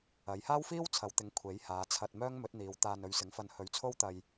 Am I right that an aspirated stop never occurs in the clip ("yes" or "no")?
no